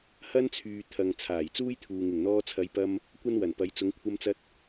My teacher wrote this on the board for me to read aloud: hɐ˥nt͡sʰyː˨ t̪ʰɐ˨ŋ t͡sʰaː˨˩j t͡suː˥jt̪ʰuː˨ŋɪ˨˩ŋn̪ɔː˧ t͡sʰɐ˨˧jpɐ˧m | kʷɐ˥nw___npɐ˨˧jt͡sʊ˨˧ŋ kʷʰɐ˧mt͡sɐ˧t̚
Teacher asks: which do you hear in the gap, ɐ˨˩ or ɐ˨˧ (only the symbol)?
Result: ɐ˨˩